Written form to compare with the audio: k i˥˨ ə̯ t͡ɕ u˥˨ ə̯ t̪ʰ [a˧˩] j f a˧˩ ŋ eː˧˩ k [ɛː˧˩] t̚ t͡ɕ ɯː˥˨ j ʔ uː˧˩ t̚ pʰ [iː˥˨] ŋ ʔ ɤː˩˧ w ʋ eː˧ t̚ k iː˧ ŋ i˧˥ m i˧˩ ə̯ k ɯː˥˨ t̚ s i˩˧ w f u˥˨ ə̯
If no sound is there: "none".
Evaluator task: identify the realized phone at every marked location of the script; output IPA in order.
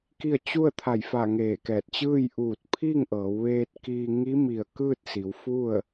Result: a˧˩, ɛː˧˩, iː˥˨

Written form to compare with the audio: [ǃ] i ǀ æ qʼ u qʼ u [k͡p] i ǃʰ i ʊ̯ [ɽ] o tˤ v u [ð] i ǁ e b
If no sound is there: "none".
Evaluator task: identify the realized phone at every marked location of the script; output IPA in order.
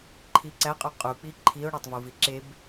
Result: ǃʰ, k͡p, ɽ, v

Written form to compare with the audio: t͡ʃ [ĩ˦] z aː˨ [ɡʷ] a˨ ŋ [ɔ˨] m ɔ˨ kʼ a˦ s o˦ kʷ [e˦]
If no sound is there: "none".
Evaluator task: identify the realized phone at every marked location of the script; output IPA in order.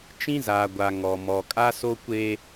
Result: ĩ˦, ɡʷ, ɔ˨, e˦

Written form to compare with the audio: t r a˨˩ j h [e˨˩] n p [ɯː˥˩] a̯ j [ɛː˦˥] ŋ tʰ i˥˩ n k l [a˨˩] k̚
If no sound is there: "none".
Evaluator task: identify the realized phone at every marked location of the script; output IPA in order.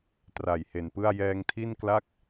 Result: e˨˩, ɯ˥˩, ɛː˧, a˥˩

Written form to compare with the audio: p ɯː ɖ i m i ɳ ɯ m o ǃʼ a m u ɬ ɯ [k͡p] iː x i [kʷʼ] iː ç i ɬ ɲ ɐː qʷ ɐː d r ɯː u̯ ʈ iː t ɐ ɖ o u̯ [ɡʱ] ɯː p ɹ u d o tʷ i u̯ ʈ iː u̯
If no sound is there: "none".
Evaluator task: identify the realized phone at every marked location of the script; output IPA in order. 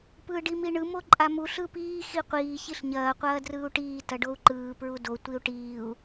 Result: p, qʷ, ǃ

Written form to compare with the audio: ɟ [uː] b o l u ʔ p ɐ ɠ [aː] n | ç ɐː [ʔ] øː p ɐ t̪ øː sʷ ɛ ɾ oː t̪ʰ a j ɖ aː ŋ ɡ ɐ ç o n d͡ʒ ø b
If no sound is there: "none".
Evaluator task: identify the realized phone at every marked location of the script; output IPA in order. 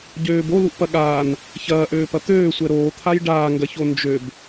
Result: øː, aː, ʔ

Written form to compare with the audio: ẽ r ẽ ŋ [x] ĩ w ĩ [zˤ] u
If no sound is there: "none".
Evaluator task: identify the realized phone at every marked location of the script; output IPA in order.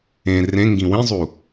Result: ɡ, zˤ

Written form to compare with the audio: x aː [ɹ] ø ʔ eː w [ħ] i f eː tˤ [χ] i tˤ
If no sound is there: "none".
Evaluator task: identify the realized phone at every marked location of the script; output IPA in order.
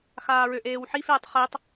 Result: ɹ, ħ, χ

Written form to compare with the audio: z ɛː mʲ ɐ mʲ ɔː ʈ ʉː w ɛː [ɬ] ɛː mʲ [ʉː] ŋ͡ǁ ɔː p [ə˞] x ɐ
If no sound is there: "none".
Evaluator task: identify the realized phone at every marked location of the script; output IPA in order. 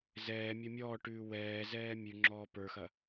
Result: z, ʉ, ə˞

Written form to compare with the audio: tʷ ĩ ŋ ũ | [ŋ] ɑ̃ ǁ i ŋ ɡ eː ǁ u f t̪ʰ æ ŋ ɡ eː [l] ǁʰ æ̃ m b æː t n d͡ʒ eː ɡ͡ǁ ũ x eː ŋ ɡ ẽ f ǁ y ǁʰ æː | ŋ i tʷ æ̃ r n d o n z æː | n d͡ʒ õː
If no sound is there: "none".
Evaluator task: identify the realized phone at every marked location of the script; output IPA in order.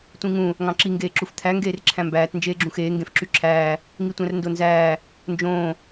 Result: ŋ, r

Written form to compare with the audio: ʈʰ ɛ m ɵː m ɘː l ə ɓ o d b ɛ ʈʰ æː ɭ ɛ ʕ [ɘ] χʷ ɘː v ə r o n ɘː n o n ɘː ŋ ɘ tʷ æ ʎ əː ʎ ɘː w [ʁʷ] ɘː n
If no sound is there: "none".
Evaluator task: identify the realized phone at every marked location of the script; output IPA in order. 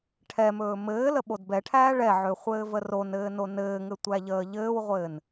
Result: ø, ʁʷ

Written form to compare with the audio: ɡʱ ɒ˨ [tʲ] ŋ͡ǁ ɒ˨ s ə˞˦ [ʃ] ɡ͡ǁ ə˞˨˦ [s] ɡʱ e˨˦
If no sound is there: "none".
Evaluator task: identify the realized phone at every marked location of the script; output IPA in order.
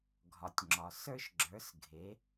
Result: tʲ, ʃ, s

